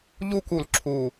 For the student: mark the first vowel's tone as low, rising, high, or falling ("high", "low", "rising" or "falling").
high